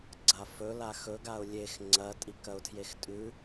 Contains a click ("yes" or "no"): yes